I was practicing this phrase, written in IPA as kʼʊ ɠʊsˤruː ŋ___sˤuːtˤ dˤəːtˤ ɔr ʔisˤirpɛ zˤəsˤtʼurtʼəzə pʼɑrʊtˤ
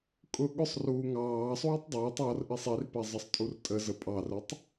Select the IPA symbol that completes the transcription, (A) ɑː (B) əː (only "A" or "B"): A